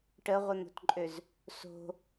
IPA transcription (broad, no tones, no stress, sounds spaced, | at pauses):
ʈ ə ʁʷ ə n̪ o̤ t ǃʼ ø z | s o̤